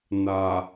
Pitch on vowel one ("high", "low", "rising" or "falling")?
low